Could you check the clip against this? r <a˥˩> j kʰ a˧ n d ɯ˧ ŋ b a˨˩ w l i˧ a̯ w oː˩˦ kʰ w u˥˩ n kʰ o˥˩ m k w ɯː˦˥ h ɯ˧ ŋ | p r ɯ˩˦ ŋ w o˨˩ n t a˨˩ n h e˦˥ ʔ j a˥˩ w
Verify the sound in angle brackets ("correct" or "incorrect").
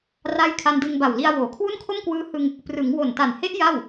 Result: correct